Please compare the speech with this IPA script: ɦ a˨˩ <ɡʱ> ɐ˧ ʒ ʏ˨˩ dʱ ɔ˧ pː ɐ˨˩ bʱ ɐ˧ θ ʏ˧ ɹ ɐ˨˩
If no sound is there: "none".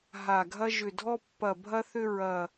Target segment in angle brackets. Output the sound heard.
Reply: ɡʱ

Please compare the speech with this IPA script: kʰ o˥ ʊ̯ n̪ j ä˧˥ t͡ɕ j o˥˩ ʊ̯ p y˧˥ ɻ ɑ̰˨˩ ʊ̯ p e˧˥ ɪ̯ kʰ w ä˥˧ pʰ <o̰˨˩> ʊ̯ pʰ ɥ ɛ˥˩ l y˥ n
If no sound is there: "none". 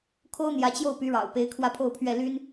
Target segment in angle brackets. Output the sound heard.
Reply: o˥˧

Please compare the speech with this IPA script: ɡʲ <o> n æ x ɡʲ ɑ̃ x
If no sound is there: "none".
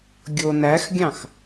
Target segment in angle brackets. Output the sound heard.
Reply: o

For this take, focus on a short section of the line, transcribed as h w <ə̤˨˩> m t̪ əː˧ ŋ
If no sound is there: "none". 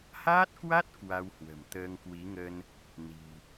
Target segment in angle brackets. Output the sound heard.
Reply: ə̤˨˩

